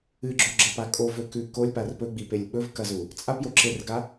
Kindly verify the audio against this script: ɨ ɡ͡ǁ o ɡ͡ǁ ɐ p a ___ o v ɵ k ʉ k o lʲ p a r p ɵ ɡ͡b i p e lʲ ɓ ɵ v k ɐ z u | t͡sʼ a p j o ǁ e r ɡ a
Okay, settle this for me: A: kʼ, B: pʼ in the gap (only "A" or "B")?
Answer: A